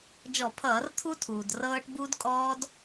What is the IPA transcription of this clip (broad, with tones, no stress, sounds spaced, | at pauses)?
d͡ʒ ɔ˧˩˧ pʰ ʌː˧˩˧ r t̪ʰ u˦˥ tʰ uː˩ d r ɤː˦˥ ʈ b u˦˥ d kʼ ɔː˦˥ d